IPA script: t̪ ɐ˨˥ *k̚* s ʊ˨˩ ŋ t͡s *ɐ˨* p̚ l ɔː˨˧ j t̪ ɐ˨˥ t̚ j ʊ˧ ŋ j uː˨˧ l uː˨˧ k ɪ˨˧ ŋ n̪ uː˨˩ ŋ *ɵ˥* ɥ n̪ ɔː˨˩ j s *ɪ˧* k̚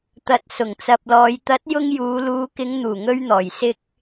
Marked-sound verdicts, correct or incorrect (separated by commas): incorrect, correct, incorrect, correct